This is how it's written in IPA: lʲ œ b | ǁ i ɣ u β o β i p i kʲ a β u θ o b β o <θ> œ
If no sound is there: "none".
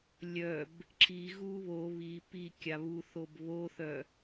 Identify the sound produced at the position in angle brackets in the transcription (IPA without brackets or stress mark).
θ